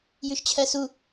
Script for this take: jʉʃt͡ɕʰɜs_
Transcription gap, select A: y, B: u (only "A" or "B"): B